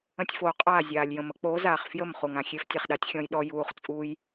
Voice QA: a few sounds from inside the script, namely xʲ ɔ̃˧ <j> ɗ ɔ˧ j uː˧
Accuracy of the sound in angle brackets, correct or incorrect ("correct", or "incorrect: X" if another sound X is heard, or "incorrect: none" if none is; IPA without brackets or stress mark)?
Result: correct